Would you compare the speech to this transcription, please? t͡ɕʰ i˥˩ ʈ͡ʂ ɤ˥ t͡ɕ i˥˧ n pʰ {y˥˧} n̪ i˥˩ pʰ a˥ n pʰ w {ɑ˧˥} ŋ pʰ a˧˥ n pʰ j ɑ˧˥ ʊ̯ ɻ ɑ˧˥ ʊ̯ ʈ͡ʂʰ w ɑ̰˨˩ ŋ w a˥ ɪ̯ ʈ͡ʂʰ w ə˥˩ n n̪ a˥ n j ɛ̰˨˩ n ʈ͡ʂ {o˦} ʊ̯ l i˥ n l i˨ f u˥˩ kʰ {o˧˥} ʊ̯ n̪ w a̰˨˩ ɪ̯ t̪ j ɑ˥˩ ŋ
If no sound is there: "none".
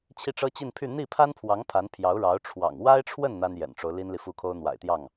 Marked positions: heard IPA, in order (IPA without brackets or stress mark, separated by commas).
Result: y˥˧, ɑ˧˥, o˦, o˥